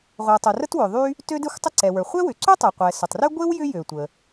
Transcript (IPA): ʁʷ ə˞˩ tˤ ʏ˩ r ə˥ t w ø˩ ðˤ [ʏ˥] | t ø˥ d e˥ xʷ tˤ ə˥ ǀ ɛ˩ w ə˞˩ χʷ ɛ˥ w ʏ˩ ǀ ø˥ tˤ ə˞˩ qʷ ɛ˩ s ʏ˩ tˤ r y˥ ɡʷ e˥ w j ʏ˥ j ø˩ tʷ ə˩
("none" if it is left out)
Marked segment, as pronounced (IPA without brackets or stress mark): y˥